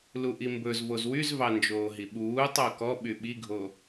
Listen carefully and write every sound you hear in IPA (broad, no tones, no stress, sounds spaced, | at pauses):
l u ʔ i m b ɵ z v o z w y z v ɑ n d͡ʒ oː ɦ i ɓ uː tˤ o k ɔ ɓ y ɓ i ɡʱ o